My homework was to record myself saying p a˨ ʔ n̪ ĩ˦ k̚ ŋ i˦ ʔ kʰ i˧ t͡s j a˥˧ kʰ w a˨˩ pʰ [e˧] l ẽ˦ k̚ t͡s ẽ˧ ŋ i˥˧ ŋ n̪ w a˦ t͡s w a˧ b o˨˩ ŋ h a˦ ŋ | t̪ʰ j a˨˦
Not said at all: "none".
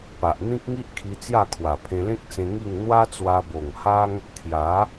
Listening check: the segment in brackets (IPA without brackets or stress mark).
ẽ˧